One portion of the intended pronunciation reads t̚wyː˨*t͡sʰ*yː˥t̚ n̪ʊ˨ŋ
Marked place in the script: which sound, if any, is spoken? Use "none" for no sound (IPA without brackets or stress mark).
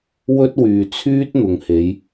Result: t͡sʰ